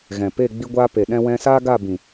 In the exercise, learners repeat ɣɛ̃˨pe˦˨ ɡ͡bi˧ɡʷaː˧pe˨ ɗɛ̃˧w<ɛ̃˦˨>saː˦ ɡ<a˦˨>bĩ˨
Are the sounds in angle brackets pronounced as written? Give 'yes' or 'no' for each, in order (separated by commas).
no, yes